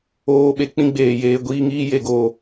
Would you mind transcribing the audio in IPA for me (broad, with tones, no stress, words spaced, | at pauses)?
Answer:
oː˧ɓe˨ k͡pĩ˦ɡ͡beː˨jeː˧ ɡʷiː˧ŋiː˦ je˧ɡoː˧